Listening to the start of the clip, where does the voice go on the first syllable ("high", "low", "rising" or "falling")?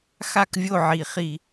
falling